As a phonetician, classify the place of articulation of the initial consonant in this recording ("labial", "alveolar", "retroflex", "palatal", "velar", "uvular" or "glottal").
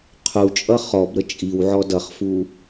uvular